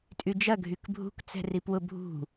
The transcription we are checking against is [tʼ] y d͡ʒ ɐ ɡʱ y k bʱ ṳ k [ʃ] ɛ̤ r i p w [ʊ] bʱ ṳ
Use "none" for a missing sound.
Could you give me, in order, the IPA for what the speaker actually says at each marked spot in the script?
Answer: tʼ, t͡s, ʊ

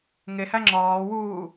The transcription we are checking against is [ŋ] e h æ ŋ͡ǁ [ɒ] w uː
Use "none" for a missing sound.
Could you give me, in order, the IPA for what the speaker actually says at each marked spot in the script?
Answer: ŋ, ɒː

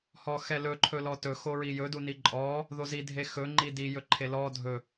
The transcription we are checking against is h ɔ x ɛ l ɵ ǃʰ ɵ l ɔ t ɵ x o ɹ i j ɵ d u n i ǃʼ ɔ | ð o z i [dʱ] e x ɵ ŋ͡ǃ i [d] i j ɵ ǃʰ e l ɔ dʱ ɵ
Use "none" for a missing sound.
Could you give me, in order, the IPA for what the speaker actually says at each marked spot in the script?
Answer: dʱ, d

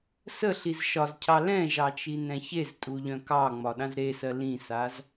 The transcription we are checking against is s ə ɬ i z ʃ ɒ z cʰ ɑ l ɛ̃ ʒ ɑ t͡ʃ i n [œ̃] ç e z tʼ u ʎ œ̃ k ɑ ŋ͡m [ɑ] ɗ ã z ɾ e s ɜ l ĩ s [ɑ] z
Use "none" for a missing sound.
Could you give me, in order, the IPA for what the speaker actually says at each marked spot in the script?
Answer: ɛ̃, ɒ, a

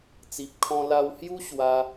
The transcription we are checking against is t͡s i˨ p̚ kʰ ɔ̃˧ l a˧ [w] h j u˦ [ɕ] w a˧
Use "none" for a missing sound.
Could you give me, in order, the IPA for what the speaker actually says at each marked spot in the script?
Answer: w, ɕ

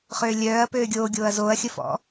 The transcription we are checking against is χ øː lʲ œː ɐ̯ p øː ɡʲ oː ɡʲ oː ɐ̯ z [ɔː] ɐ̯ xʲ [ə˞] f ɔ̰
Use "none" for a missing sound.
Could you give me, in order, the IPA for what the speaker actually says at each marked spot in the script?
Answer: oː, ə

